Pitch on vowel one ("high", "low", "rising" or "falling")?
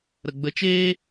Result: low